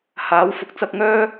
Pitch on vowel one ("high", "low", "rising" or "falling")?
rising